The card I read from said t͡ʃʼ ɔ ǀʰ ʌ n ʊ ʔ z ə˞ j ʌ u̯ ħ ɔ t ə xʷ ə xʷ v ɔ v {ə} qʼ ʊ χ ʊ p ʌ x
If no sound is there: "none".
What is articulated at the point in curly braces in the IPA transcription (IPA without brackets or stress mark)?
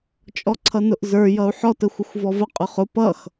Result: ə